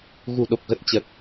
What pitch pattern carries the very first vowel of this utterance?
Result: low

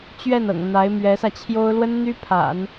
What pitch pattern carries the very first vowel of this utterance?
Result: falling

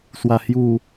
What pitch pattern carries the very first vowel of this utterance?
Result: low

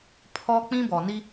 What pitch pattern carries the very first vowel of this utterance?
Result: high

